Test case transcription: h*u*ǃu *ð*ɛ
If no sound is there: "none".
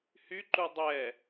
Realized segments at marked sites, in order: y, dˤ

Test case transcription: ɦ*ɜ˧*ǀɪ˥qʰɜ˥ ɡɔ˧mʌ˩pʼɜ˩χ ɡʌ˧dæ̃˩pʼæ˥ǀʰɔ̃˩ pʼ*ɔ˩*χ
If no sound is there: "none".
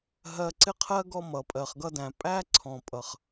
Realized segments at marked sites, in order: ɜ˧, ʌ˩

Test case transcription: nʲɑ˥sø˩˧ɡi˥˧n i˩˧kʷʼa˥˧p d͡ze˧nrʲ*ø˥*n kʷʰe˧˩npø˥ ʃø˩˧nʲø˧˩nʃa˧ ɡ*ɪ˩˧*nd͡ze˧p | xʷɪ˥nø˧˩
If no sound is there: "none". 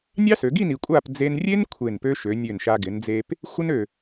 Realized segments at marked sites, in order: e˥, ɪ˩˧

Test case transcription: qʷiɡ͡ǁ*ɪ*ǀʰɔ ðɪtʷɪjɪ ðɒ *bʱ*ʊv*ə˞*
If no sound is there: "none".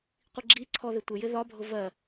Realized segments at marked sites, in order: i, bʱ, ɜ

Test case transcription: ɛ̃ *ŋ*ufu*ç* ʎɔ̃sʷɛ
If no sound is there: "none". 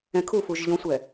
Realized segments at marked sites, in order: kʰ, ʒ

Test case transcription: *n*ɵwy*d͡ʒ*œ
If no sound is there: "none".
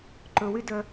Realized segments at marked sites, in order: ǃ, d

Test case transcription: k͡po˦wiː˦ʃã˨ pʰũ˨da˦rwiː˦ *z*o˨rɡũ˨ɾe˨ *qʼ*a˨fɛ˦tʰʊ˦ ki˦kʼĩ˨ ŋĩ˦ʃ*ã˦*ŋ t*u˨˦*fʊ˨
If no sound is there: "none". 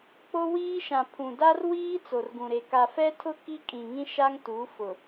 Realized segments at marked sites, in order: t͡s, k, a˦, u˨˦

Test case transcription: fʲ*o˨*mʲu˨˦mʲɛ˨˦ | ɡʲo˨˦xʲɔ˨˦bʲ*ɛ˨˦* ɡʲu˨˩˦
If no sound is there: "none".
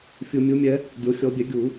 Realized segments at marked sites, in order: u˨, ɛ˨˩˦

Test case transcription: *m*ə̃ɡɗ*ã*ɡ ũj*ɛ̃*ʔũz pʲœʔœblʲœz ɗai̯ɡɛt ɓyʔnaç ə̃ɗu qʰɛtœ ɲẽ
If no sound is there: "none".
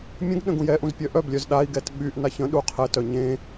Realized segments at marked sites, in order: mʲ, ə̃, ɛ

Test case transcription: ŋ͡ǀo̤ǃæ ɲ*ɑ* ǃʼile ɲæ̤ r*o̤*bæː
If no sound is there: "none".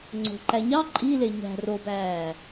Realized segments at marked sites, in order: ɑ, o

